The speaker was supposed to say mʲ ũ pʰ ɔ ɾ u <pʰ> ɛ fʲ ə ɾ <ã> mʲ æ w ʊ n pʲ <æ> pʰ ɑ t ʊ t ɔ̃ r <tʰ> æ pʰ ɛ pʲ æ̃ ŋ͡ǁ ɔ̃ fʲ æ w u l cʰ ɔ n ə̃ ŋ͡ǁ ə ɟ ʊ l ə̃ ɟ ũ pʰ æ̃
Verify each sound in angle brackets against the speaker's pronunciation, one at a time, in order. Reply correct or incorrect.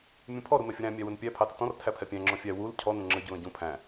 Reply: incorrect: m, incorrect: æ̃, correct, correct

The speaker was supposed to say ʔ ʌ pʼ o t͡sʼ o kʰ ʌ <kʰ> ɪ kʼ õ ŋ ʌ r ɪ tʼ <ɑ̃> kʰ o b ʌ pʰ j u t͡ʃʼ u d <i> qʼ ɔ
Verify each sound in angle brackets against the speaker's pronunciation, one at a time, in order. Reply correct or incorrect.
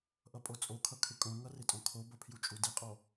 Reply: correct, incorrect: ɔ̃, correct

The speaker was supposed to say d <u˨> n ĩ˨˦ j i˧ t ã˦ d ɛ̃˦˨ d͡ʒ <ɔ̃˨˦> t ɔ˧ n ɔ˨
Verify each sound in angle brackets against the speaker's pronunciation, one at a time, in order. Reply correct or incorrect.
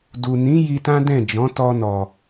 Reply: correct, correct

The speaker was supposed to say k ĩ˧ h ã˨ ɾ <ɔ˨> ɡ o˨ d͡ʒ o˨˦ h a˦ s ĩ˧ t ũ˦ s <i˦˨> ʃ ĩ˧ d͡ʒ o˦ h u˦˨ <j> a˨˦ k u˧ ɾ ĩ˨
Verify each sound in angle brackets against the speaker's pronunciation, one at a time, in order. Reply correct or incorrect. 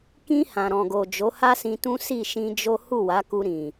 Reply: incorrect: ɔ̃˨, correct, incorrect: w

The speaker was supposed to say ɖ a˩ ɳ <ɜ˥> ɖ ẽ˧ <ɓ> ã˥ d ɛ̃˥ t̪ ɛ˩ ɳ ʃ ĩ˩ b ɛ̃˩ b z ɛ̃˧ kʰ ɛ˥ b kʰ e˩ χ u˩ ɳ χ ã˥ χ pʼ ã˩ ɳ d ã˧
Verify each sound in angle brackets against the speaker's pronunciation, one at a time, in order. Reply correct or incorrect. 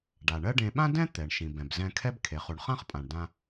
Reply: correct, correct

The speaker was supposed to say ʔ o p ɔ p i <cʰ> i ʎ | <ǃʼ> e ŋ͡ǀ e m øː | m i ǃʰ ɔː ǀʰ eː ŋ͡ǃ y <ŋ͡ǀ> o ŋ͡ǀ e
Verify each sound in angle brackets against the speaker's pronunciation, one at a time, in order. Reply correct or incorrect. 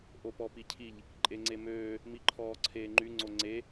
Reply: correct, correct, correct

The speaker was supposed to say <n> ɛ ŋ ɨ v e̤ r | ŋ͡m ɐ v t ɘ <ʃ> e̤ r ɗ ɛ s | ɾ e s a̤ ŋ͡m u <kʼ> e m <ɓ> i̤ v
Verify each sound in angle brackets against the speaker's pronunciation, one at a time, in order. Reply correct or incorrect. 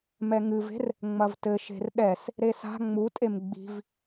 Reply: incorrect: m, correct, incorrect: tʼ, incorrect: ɡ͡b

